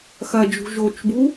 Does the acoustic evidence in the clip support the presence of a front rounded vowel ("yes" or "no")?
no